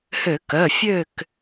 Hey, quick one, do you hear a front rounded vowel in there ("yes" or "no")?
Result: yes